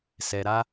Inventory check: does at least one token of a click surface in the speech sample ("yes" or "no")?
no